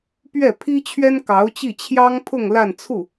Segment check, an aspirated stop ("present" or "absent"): present